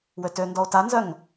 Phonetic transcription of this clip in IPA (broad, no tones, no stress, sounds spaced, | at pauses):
w ø t ø n d ɔ o̯ t a n z œ ŋ